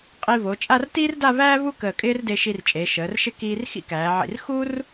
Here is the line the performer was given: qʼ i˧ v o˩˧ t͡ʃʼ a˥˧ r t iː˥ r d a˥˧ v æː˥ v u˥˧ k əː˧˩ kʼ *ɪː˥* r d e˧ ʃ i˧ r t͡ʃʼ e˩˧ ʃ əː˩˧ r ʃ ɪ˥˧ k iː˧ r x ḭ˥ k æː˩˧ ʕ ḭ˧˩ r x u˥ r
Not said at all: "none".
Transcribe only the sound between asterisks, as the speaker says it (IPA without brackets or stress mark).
ɪː˥